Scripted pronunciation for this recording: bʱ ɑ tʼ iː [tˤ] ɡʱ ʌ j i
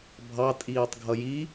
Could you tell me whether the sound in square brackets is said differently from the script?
no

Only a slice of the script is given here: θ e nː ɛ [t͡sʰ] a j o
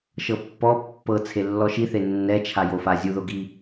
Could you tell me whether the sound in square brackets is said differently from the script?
yes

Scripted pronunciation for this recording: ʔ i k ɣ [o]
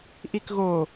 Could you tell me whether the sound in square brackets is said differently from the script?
no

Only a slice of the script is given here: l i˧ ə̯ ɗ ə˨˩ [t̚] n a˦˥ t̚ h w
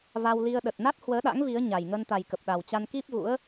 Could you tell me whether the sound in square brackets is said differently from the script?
no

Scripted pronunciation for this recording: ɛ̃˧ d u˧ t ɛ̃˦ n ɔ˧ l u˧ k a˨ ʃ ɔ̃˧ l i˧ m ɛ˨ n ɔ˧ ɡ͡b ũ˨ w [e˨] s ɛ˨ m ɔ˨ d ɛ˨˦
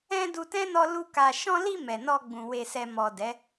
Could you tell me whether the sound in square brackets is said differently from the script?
no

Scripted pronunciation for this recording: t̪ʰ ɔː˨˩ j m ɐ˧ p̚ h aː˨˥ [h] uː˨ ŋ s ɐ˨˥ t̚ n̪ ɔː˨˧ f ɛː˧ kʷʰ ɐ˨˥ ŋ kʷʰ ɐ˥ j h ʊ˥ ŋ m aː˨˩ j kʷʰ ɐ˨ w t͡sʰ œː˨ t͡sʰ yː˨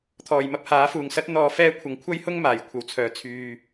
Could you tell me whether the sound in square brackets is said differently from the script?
yes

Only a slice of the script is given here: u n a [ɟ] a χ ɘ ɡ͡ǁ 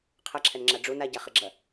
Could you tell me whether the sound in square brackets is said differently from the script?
no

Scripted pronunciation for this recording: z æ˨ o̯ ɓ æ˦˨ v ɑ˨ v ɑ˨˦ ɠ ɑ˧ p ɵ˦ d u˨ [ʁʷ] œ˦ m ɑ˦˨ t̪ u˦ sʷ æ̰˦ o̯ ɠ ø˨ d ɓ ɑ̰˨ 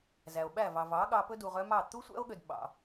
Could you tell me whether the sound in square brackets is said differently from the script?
yes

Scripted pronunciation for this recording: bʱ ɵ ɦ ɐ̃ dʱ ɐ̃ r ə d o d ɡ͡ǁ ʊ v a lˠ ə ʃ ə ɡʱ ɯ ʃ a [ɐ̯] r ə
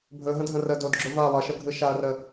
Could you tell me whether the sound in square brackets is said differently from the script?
no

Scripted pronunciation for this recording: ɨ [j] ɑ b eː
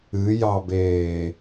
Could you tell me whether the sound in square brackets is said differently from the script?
no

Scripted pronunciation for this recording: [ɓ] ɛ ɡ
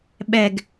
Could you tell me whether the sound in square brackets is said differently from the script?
no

